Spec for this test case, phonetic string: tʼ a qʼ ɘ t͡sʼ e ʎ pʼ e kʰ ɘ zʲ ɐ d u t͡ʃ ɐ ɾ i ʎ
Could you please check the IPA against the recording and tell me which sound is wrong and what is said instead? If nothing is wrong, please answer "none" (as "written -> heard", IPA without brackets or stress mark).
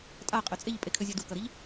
t͡ʃ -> k